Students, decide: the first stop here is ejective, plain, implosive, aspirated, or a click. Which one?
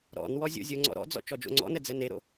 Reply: click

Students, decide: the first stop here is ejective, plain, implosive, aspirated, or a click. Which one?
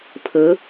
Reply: aspirated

